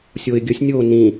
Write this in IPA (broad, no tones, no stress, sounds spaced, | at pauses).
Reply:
sʲ o ɪ̯ ɡʲ ə sʲ nʲ oː n ĩ